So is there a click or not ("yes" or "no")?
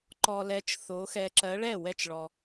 yes